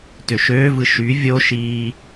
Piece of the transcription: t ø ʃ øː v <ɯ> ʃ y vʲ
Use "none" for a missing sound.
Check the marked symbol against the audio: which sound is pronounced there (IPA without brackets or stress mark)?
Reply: ɯ